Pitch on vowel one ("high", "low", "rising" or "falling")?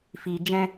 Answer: low